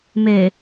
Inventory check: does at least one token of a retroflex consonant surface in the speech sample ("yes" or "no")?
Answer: no